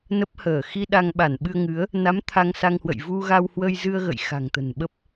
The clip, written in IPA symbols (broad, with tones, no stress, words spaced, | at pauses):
nə˦˥p̚həː˧˩ xi˧ ɗa˧ŋɓa˧˩nɓɨ˧ə̯ ŋɨ˨˦ə̯ | na˨˦m t̪ʰa˧ŋsa˧ŋhwə̰˧˨j vu˧ ɣa˧whwə˧jzɨ˧ə̯ ɣə̰˧˨j xa̤˨˩ŋt̪ə̤˨˩nɓə˦˥p̚